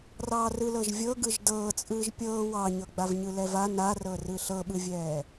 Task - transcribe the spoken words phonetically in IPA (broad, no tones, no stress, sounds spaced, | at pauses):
r ɑː r ɯ l ɤ ʒ vʲ ɤ ɡ ɯ ʒ d ɤː t͡sʼ ɯː ʒ pʲ ɤː w ɑ ɲ ɤ ɡ͡b a v ɲ ɯ l ɛ v a n a r ɤ r ɯ ɬ ɤ ɓ ɯ vʲ ɛː